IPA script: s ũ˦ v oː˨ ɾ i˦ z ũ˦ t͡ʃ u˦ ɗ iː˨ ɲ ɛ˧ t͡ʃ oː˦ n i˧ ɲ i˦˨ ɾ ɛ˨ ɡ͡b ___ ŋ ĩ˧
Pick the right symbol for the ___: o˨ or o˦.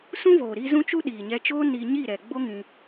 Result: o˦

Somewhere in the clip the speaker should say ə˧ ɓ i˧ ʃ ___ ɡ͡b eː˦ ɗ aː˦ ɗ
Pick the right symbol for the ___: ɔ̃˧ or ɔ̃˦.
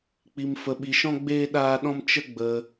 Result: ɔ̃˦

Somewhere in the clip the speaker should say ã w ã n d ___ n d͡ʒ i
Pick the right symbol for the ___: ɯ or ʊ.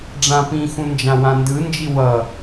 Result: ɯ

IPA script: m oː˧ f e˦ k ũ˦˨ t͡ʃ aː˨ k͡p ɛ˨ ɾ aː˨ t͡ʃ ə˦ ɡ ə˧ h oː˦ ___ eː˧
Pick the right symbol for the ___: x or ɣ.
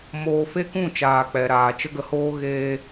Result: ɣ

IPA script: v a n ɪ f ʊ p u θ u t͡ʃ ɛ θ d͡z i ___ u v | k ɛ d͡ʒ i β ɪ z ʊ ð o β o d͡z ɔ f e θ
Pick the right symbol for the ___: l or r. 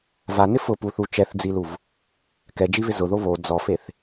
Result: l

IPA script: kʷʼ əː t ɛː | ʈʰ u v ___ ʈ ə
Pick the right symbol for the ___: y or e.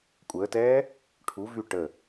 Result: y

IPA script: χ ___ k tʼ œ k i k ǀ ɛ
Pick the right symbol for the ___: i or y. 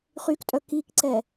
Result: y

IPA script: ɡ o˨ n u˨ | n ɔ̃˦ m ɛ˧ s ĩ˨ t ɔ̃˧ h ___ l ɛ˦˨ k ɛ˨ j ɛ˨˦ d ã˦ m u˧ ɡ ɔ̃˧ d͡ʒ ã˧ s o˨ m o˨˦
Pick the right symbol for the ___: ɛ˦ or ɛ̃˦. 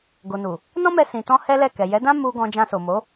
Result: ɛ˦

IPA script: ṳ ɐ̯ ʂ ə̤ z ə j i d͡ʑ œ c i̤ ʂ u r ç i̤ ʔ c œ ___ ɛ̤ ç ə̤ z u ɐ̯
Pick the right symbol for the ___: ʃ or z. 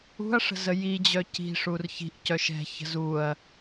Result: ʃ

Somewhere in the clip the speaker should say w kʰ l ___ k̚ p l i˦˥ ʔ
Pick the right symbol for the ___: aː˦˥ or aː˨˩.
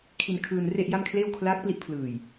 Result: aː˦˥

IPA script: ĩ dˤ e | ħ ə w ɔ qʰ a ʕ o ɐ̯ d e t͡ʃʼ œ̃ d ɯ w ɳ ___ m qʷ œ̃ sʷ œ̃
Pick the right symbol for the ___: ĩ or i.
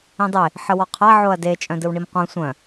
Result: i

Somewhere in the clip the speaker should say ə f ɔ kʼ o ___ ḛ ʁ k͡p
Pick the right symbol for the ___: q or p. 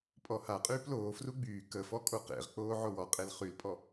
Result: q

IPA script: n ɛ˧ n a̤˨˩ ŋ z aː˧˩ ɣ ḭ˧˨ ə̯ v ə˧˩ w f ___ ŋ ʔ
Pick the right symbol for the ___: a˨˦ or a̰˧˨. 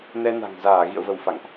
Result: a̰˧˨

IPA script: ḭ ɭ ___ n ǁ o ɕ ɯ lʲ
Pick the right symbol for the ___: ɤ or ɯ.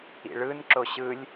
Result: ɯ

